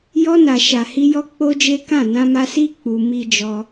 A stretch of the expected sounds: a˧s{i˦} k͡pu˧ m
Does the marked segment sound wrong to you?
no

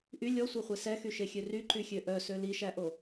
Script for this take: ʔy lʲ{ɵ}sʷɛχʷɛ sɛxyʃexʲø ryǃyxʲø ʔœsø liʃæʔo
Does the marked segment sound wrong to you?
yes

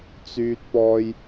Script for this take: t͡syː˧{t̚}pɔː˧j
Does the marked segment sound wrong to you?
no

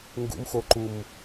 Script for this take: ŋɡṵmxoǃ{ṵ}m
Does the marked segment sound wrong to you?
yes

